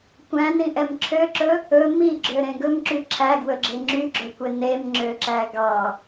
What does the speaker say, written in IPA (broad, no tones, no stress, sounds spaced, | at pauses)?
kʷ æ̃ n ĩ ʔ ɛ m ǁʰ ø ǁ ɵ | ɵ m i ɡ͡ǁ ø ɾ ẽ ɡ ɵ m ǁ y ǁʰ æ ɡ w ɵ ɡ͡ǁ e ŋ͡ǁ y ɡ͡ǁ ɵ kʷ e n e m ŋ͡ǁ ø ǁ æ ɡ ɑ